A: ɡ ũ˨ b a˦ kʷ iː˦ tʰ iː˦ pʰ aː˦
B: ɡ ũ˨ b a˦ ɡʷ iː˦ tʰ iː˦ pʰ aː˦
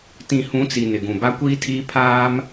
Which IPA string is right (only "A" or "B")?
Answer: A